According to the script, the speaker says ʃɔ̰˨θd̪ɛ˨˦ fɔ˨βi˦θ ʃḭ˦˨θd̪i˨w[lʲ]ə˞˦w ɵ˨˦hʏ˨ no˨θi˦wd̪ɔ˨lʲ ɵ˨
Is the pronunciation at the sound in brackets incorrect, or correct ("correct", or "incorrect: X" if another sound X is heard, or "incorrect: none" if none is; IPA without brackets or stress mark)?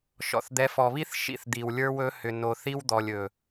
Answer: correct